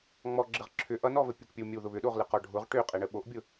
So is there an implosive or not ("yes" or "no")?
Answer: yes